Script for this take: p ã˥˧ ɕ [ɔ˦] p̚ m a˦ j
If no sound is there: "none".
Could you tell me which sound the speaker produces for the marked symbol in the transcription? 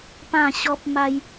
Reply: ɔ˦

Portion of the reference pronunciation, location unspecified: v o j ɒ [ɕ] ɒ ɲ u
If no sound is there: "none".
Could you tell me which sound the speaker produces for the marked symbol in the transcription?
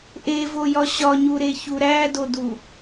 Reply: ɕ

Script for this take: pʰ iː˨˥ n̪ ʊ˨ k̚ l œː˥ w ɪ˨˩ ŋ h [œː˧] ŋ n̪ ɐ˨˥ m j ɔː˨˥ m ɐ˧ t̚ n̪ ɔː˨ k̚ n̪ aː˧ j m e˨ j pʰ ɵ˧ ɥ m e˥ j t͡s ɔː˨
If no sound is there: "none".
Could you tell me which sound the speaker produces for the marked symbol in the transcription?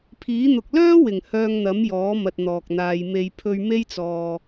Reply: œː˧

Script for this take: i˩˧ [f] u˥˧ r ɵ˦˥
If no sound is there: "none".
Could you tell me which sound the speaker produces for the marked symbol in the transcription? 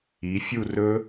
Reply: fʲ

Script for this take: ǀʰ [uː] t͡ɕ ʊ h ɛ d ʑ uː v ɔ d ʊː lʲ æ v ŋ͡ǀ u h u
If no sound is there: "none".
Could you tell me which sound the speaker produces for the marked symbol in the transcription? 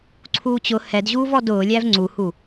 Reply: uː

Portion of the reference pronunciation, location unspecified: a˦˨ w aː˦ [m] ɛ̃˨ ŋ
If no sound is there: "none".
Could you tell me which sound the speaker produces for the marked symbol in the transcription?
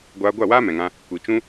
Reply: m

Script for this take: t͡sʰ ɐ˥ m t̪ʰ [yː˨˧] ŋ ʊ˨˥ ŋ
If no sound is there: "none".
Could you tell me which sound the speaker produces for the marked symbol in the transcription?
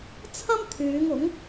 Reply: yː˨˧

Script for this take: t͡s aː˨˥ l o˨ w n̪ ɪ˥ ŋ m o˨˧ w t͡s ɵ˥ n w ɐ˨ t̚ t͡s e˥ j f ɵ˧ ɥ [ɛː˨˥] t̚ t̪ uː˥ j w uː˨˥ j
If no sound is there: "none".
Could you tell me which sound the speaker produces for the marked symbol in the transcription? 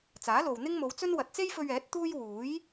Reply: ɛː˨˥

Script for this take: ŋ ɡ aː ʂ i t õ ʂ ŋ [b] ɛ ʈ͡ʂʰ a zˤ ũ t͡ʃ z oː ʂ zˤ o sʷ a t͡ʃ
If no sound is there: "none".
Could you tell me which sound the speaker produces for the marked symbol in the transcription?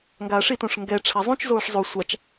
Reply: ɡ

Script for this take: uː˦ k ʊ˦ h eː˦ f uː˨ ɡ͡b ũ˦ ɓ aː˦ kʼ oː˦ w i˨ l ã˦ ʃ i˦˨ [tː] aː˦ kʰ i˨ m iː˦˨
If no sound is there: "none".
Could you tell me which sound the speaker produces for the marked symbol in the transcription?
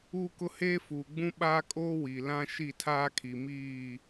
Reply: tʰ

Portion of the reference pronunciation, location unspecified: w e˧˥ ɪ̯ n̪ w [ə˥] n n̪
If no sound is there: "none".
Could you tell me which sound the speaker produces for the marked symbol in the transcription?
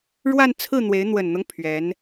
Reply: ə˨˩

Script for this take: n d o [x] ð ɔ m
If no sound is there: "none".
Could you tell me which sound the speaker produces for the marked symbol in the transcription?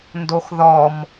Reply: x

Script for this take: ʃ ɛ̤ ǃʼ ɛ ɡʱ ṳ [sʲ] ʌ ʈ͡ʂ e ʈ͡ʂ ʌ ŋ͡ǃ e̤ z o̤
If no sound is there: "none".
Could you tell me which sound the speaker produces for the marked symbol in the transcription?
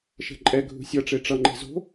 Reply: sʲ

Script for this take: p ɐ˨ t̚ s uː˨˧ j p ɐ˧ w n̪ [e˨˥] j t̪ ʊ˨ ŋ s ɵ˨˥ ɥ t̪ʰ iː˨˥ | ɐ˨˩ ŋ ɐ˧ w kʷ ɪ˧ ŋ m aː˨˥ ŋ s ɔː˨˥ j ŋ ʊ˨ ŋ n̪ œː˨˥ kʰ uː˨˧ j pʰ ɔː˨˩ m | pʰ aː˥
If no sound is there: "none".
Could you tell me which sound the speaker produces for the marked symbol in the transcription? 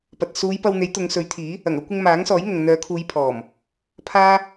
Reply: e˨˥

